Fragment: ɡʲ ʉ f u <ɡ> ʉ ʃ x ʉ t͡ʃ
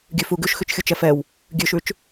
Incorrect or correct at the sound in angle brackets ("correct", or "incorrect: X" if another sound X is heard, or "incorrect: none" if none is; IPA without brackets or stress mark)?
correct